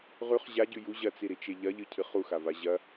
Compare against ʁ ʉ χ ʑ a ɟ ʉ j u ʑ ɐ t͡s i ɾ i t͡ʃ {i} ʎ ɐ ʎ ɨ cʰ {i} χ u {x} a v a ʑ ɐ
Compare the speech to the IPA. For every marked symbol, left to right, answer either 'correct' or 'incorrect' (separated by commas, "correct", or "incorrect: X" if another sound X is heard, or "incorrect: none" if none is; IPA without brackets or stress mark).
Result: incorrect: e, incorrect: ɨ, correct